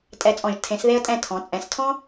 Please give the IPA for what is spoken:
tʼ ɛ˧ t͡sʼ ɔ̃˧˩ ʒ tʰ ẽ˩˧ s ð e˧ ə̯ tʼ ɛ̃˧˩ tʰ ɔ̃˩˧ t͡sʼ ɛ̃˩˧ s tʰ ɔ̃˥

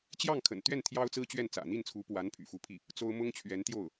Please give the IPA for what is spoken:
t͡ɕ j ɑ˥˩ ŋ kʰ ə̰˨˩ n t̪ ɥ ɛ˥˩ n t̪ʰ j ɑ˥ ʊ̯ t͡s ɹ̩˥ t͡ɕ ɥ ɛ˥˩ n t͡s ä̰˨˩ n̪ i˥˩ n t͡sʰ u˧˥ p w a˧˥ n pʰ y̰˨˩ f u˧˥ pʰ i˥˩ | t͡s o˥ ʊ̯ m ʊ˥ ŋ t͡ɕʰ ɥ ɛ˧˥ n t̪ j o˥˩ ʊ̯

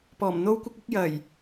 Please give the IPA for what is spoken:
p ɔː˨˩ m n̪ o˥ w kʷ ɪ˥ k̚ ɪ˥ k̚ j ɐ˨˩ j

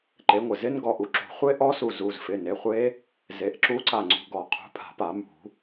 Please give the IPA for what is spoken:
ǃ e˩˥ ŋʷ ɪ˩ z ɪ˦˥ n ɡ ɔ˩˧˩ ʔ u˦˥ ǁ ṳ˨˩˦ χʷ e˦˥ ʔ ɔ˦˥ s u˧˩ z u˩˧˩ z f ɪ˩˧˩ n e˩˧˩ χʷ e˦˥ | z e˩˧˩ ʔ ǁ u˦˥ ǀ a˧˩ ŋ͡ǀ ṳ˩˧˩ ɡ ɔ˨˩˦ qʰ ṳ˩˥ pʰ a̤˨˩˦ p a˨˩˦ m ṳ˨˩˦

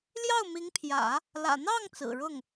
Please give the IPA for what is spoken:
l j ɑ˥˩ ʊ̯ m i˧˥ ŋ pʰ j ä̰˨˩˦ | l ä̰˨˩ n̪ ɑ˥˩ ŋ t͡s ɹ̩˨˩ ɻ ʊ˥˩ ŋ

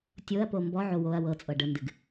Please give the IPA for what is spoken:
tʲ o ɐ̯ p o m b ɔ ʕ o w o ɐ̯ w ɤ t͡sʼ ɤ ɖ ə n d ɨ ɡ

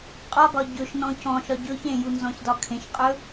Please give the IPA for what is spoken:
qʼ ɒ ɡ ɒ ɟ ɵ ʃ n ɔ̃ c ɔ̃ ʃ ɒ ɟ ɵ ç ẽ j u n z ɔ̃ ç d ɒ kʰ ẽ ʃ qʼ ɵ

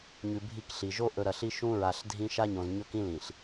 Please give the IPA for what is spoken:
ɲ ʉ˨ bʱ i˦˨ k ɬ i˨ ʒ o˦ ʔ ɵ˨ ɾ ɐ˨ ɬ i˦ ʃ ũ˦ ɹ a˨ ɬ dʱ ĩ˦ ʃ a˦ ɲ õ˨ z ɲ ɵ˦ k ĩ˦ l ĩ˨ ɬ

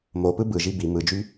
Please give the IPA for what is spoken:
m o p ɯ b ɯ ʒ i b i m ɯ d͡ʒ y

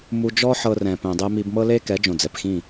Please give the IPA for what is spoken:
m u˧ d͡ʒ ɔ˦ ħ ɤ˧ r ɛ̃˨ p ɛ̃˨ dˤ e˧ m i˧ b m ɤ˦ l e˦ k ɛ˨˦ d͡ʒ õ˨ d͡z ɛ˨ p x ĩ˦˨

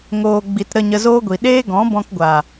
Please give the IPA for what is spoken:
ŋ oː˨ ɡ͡b i˨ t ɾ ə˧ ɲ ə˧ z oː˦ ɡʷ i˨ ɗ eː˦ ɡ ɔ̃˨˦ b ɔ̃˧ k ɡʷ aː˨

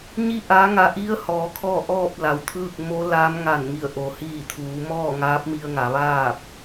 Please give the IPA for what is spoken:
ɲ i˥˨ ʔ aː˧˥ ŋ a˧ ʔ i˧˥ ə̯ h ɔː˩˧ kʰ ɔː˥˨ ʔ ɔː˥˨ p̚ l a˩ w t̪ʰ ɯː˥˨ k̚ m o˧˥ l aː˧˥ m ŋ a˧˩ n ŋ i˧˩ ə̯ ʔ o˩ h iː˧˩ t̪ʰ uː˩˧ m ɔː˥˨ ŋ aː˧˥ p̚ m i˧ ə̯ ŋ a˩˧ ʋ aː˥˨ p̚

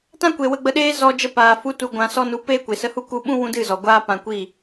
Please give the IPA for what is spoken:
t ã˦ kʷ e˨ w ə˧ ɡ͡b ə˧ ɗ eː˦ z ɔ˦ d͡ʒ ə˦ p aː˨ f u˦ t u˧ ɡʷ ã˧ s ɔ˦ n u˧ p eː˦ kʷ e˨ s ə˧ h u˦ k u˧ ɓ ũ˦ w ũ˦ d ɨ˦˨ z ɔ˨ ɡʷ aː˦ p ã˧ kʷ i˦˨

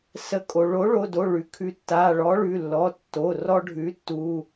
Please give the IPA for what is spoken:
s ə˨˥ kʼ o˩ ɭ o˨˥ ɭ o˩˧˩ d o˩˧˩ ɭ ʉ˩ kʰ ʉ˨˥ tː a˩˧˩ ɭ ɔ˨˥ ɭ ʉ˩˧˩ lː ɔ˩˧˩ tː o˩˧˩ r ɔ˦ ɖʱ ʉ˨˥ tː u˩˧˩

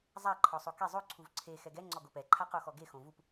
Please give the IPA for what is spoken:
zˤ a ǃʰ ɔ sˤ o k e zˤ o ǀʰ u v ǀʰ e x ɛ ɡ ɛ ŋ͡ǀ ɔ ɡ o p ɛ ǃʰ a q o x ɔ ɡ e x õ v u p

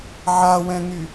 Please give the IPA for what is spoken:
ʕ a w ɛ̃ ŋ y

